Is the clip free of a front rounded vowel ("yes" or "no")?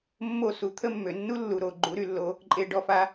no